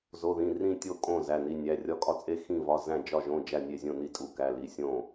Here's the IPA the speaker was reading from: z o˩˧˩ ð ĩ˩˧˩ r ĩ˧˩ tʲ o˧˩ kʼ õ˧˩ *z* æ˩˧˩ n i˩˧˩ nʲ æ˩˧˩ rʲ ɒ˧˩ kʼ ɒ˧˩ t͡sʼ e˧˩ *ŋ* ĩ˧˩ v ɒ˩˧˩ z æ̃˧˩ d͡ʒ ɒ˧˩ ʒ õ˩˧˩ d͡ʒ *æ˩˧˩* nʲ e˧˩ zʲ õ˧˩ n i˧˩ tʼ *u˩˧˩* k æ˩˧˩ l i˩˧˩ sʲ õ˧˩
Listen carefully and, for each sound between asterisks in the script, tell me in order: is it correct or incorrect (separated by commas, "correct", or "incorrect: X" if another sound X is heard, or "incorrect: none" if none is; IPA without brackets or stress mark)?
correct, incorrect: x, incorrect: æ˧˩, correct